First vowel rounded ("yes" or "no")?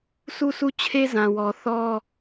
yes